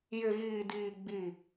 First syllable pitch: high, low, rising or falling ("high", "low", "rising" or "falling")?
low